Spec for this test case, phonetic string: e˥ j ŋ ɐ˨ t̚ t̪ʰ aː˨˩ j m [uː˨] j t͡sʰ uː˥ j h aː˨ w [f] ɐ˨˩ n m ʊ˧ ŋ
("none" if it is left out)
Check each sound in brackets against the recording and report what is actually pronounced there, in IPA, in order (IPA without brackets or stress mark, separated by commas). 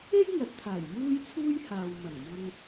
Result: uː˥, m